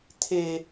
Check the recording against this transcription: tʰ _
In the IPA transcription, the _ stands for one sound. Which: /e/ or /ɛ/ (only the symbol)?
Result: e